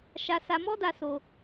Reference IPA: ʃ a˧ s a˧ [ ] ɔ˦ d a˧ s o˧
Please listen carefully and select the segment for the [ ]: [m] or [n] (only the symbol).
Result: m